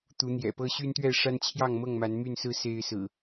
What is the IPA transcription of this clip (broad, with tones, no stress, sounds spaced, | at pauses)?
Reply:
t̪ u˨˦ n̪ j ɛ̰˨˩ p ɤ˦ ɕ y˦ n t̪ ɥ ɛ˥˨ ʂ a˦ n t͡ɕʰ j ɑ˥˨ ŋ m ɤ˥˨ ŋ m a˨˦ n m y˥˨ n s ɹ̩˦ s e˦ ɪ̯ s ɹ̩˨˩